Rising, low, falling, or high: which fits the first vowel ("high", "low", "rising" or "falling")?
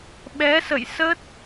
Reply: rising